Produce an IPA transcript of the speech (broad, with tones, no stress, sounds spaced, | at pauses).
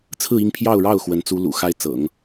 t͡sʰ ɹ̩˥˧ i˥˧ ŋ pʰ j ɑ˥˧ ʊ̯ ɻ ɑ˥˩ ʊ̯ x w ə˧˥ n t͡s u˥ l ṵ˨˩ x a˥ ɪ̯ t͡s ɤ̰˨˩˦ ŋ